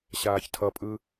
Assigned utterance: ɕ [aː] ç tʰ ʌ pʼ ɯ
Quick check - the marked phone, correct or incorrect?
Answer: correct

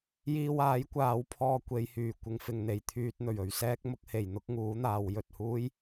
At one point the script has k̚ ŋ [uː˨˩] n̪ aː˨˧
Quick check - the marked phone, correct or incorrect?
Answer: incorrect: uː˨˥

